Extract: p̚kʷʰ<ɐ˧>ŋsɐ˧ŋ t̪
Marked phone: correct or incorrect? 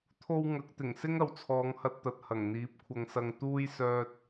correct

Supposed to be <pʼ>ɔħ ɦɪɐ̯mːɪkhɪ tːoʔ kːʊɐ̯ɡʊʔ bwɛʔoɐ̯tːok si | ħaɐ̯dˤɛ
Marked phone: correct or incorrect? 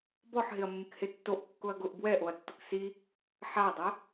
incorrect: b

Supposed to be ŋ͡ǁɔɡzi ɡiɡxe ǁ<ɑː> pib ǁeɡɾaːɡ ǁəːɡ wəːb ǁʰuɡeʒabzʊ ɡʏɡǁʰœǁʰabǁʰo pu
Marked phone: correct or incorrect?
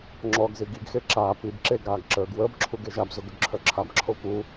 incorrect: aː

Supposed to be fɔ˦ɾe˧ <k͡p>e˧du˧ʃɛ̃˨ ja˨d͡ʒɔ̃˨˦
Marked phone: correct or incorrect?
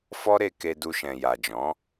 incorrect: k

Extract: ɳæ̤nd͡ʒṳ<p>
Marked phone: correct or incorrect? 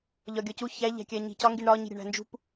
correct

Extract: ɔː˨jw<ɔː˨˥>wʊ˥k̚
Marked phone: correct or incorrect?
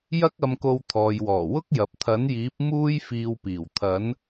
incorrect: ɔː˨˩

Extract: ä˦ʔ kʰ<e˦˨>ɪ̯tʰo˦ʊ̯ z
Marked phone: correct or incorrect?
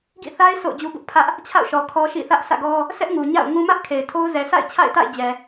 incorrect: e˨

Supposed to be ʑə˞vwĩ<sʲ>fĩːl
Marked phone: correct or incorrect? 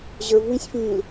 correct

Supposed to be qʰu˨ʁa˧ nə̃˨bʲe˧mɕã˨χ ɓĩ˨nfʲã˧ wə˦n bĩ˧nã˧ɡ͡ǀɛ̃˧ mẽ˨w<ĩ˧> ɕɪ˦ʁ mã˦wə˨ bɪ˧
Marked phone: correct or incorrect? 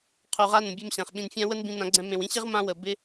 correct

